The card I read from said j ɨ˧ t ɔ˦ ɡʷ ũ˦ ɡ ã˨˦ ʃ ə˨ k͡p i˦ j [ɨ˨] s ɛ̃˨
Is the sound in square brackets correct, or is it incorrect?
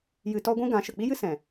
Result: incorrect